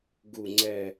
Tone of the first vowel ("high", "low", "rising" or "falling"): falling